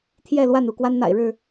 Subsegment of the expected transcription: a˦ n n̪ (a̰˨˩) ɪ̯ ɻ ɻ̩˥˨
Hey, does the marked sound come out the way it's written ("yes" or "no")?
yes